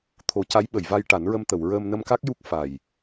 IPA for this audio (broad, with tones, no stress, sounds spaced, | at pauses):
t̪ʰ o˨˩˦ c a˧˥ j ɓ ə˨˩˨ j v a˧ j ʈ a˨˩˦ n ɹ ə˧ m t̪ ə˨˩˨ w ɹ əː˧ m n ə˧ m k a˦˥ k̚ j u˦˥ k̚ f a˨˩ j